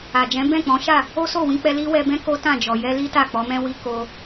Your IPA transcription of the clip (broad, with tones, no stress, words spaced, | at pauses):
a˨d͡ʒɛ̃˨˦ bɛ̃˦˨k͡pɔ̃˨˦ʃa˦˨ | o˦so˦˨wĩ˧k͡pɛ˧ li˦wɛ˧bɛ̃˦ ko˦tã˦˨d͡ʒɔ˨ jɛ˧li˦ ta˦˨k͡pɔ˨˦mɛ̃˦wi˦ ko˧